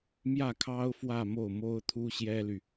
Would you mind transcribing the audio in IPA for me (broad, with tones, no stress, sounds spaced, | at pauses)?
m j ä˥˩ kʰ ɑ˥ ʊ̯ f w ä˥˧ m o˥˩ ʊ̯ m o˥ ʊ̯ t̪ʰ u˥ ɕ j ɛ˥ l y˨